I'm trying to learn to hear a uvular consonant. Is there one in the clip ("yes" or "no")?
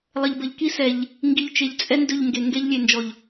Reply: no